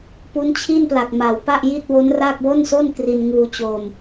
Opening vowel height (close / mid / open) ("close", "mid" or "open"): close